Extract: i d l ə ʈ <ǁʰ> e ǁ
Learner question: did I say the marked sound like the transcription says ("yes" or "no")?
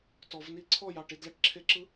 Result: yes